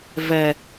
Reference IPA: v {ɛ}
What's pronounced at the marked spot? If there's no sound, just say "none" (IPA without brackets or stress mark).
ɛ